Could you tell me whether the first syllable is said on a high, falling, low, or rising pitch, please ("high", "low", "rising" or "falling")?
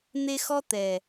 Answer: high